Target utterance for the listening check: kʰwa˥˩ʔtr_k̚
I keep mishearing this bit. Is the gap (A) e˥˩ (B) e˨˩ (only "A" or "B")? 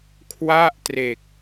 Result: B